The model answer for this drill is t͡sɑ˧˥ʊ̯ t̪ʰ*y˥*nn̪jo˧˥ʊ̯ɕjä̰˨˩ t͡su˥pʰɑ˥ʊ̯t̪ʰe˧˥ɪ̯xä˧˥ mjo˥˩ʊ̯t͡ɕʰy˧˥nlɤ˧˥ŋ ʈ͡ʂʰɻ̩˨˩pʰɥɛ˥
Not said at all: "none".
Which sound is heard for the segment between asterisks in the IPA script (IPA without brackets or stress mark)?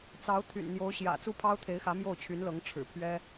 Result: y̰˨˩